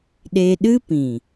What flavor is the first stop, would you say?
implosive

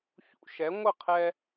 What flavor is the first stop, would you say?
aspirated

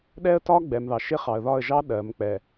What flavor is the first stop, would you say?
implosive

